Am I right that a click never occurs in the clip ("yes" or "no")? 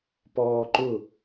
no